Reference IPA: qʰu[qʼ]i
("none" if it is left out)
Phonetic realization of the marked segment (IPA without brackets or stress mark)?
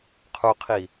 qʰ